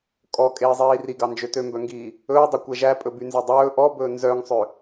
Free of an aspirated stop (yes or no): yes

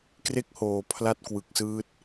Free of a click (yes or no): yes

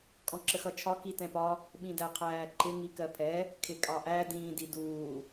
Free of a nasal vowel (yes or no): no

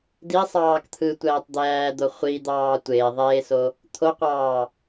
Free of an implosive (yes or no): yes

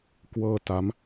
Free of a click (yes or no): yes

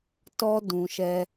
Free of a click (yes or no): yes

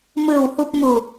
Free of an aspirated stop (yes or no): yes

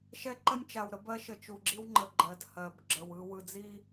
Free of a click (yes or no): no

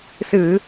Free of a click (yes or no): yes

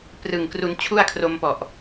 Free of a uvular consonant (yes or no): yes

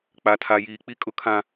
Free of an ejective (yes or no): no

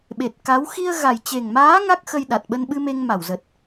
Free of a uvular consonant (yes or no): yes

